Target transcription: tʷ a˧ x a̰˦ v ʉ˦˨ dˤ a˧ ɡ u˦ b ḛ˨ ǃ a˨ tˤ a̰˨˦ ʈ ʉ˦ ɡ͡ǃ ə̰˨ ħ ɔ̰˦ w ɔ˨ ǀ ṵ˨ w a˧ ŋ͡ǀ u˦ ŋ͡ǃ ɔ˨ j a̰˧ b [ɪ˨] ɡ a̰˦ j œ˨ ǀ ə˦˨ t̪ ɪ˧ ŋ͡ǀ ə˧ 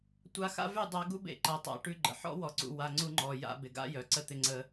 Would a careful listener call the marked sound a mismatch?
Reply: no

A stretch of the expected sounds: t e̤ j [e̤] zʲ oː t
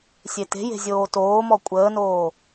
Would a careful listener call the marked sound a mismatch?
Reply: no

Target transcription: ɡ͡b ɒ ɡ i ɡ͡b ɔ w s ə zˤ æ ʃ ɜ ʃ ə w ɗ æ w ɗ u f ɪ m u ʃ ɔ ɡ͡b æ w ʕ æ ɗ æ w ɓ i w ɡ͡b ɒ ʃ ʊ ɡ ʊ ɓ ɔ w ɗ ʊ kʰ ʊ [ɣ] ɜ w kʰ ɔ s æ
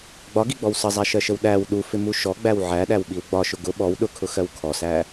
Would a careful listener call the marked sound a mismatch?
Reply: yes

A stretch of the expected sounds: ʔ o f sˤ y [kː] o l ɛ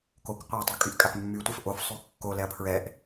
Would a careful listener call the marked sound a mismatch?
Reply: no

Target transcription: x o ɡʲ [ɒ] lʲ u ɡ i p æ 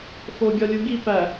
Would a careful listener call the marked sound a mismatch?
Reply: no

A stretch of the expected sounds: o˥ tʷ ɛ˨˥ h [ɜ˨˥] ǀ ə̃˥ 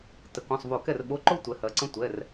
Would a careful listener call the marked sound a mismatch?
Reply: no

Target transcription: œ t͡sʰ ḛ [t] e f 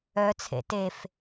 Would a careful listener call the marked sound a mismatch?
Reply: no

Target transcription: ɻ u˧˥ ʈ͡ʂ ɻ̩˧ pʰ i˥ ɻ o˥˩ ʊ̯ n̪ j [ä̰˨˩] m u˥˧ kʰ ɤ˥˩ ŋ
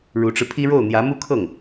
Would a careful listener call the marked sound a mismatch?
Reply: yes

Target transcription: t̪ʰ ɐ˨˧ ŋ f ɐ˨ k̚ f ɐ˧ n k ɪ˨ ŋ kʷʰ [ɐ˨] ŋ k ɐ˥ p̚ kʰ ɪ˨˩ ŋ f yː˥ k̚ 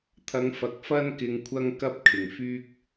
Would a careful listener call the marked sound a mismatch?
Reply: yes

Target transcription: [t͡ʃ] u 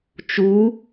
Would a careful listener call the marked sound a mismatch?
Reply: no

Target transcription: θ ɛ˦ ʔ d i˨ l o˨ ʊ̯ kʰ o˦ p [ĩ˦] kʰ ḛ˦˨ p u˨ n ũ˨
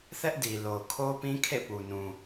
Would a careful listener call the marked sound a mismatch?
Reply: no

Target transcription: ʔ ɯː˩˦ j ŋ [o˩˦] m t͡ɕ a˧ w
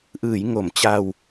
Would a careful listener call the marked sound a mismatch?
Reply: no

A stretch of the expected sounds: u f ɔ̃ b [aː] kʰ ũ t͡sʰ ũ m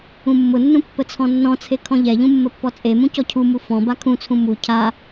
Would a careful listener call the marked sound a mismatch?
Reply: yes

